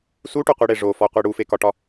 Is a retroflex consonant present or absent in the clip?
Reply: present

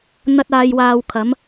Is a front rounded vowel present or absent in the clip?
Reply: absent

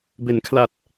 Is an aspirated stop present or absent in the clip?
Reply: present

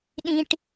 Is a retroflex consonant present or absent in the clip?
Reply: present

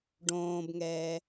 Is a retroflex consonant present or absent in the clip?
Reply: present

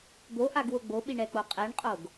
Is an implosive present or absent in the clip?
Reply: present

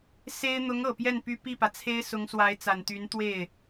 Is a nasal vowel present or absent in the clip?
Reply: absent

